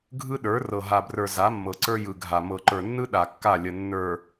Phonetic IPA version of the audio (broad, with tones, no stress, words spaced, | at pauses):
ɡʱɯ˦ɗə˞˨˦ rɤ˨ɦa˨brə˞˨ za˨˦mːɤ˨ǀə˞˦ jɯ˨ɡʱa˨ mɤ˨ǃə˞˨nːɯ˦ ɗa˨ kːa˦˨lʲə˨ nːə˞˨